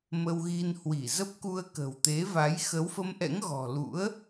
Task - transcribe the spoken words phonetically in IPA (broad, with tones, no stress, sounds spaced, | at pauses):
m ə˧ w ɣ i˧ n h w i˧˩ z ə˦˥ p̚ k u˧ ə̯ k ə̤˨˩ w t̪ e˨˦ v a˨˦ j x ə˨˦ w f ə˧ m ʔ ɛ̰˧˥ ŋ ɣ ɔ̤˨˩ l ṵ˧˥ ə̯